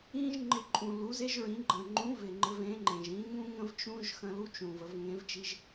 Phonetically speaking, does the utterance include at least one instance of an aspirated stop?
no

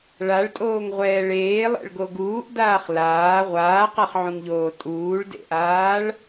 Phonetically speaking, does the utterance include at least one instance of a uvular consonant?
yes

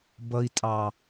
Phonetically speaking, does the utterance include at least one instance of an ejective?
yes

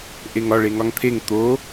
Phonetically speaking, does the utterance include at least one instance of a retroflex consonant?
yes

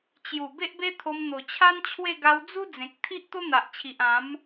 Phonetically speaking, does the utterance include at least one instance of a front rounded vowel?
no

